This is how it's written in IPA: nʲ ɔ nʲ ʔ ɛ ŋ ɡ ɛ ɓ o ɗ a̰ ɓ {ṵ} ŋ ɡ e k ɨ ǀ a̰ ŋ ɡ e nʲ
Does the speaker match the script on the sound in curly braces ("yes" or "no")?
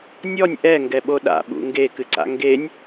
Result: yes